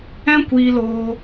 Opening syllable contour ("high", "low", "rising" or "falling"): high